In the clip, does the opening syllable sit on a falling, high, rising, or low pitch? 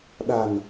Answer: low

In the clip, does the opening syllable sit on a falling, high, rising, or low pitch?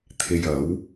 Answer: low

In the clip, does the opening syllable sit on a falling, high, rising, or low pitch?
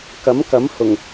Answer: rising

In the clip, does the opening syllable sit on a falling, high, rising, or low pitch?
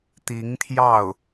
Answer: rising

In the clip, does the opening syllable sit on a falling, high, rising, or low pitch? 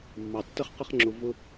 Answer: low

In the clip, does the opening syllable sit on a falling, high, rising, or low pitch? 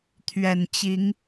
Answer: low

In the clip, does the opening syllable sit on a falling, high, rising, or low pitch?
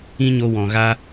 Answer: high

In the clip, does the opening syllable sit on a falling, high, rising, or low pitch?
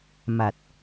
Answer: low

